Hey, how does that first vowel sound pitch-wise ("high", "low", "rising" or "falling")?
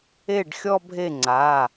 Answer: falling